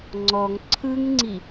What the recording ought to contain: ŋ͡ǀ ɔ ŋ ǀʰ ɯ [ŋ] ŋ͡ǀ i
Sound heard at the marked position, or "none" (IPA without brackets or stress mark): ŋ